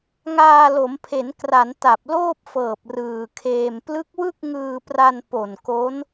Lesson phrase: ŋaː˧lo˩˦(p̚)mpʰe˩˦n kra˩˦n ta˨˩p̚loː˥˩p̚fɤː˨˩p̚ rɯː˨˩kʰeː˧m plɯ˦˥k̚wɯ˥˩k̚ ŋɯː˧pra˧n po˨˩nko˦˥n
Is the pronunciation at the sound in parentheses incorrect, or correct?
incorrect